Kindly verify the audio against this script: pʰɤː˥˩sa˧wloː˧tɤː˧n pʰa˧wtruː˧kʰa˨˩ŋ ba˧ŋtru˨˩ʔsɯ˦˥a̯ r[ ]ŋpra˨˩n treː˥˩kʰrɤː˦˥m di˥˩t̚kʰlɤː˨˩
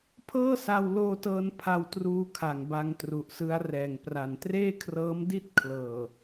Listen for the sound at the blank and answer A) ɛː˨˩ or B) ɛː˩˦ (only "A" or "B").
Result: A